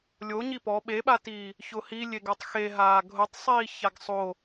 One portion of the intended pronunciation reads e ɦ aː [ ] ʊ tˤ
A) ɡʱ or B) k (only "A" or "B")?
A